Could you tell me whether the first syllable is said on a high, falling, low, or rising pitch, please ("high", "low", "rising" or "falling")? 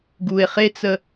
low